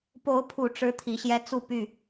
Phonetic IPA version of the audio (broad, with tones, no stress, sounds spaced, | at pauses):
p o˨˦ ʊ̯ pʰ u˨˩ ʈ͡ʂ ɻ̩˨˦ t̪ʰ i˨˦ ɕ j ɛ˦ t͡s u˥˨ p y˥˨